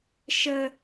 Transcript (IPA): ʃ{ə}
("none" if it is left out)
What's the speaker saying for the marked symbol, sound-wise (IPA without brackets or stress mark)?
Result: ə